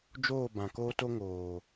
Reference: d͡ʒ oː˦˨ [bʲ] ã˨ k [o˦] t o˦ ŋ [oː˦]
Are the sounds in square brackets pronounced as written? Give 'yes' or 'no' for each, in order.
no, no, no

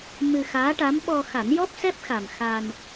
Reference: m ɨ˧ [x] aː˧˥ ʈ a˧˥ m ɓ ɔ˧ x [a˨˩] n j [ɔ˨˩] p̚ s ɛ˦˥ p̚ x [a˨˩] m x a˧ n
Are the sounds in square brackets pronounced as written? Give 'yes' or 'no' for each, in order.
yes, no, no, yes

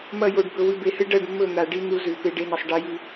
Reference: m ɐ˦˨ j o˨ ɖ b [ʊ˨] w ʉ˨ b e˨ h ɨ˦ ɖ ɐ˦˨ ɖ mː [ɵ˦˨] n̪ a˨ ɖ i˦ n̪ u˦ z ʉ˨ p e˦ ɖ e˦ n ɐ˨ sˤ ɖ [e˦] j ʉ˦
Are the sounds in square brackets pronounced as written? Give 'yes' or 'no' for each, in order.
no, yes, yes

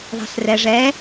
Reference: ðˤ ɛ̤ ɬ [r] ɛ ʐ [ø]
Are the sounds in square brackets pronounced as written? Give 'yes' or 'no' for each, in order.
yes, no

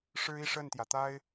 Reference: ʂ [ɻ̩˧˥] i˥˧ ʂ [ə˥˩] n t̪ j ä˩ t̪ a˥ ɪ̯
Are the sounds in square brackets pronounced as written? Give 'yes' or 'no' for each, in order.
no, yes

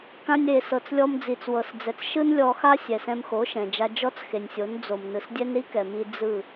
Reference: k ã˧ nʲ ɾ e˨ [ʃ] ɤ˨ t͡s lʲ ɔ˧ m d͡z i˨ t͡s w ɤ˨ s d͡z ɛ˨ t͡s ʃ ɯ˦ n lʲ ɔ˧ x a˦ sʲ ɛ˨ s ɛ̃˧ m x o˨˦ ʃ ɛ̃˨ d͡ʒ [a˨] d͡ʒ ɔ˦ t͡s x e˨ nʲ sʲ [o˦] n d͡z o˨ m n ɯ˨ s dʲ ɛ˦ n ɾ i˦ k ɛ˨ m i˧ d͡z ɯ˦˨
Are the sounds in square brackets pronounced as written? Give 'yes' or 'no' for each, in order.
no, no, no

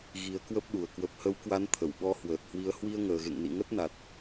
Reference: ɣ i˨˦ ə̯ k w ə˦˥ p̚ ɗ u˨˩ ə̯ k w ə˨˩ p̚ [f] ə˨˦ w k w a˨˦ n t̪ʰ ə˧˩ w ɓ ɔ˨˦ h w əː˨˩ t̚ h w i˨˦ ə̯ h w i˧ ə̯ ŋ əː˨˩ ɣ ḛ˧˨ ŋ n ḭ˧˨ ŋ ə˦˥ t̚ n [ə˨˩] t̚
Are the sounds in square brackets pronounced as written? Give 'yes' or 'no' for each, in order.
no, no

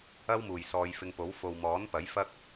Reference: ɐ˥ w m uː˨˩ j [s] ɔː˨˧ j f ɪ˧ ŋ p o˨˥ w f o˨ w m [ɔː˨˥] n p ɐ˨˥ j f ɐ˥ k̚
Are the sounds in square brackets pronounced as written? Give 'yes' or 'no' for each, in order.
yes, yes

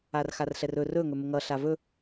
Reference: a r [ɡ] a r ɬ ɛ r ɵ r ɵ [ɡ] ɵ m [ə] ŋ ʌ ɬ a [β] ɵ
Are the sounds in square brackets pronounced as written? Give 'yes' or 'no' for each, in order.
no, no, yes, no

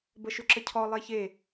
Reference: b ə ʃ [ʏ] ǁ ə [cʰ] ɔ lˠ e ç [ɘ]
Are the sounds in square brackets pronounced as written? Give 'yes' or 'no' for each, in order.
yes, yes, no

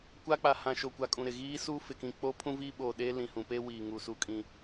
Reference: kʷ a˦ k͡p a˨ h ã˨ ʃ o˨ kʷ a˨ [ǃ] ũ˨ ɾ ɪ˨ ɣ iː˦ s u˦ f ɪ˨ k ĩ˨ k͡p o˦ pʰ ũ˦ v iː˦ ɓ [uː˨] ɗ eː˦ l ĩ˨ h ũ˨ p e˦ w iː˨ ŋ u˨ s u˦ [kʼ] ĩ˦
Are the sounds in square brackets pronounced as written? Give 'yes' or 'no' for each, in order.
no, no, yes

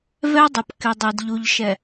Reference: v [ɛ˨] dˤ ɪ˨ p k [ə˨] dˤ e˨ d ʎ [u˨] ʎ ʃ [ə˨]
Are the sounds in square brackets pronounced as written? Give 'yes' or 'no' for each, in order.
no, no, yes, no

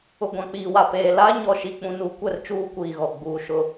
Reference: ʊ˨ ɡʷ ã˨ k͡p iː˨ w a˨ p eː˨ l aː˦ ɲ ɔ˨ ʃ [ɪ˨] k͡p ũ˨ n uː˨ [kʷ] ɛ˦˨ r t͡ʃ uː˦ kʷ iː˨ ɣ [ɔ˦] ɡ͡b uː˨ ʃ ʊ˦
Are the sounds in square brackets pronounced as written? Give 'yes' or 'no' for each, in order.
no, yes, no

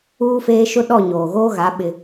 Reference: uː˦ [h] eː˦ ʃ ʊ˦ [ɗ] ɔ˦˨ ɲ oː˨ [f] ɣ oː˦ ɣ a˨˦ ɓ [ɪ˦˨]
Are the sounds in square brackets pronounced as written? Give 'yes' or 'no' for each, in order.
no, yes, no, no

